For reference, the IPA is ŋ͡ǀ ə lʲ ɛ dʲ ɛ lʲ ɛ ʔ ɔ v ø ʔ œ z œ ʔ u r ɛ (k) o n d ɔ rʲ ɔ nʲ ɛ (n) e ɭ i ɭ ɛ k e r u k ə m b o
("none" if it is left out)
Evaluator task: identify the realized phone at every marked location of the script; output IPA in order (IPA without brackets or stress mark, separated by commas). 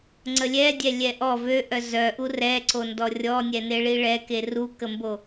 ǀ, n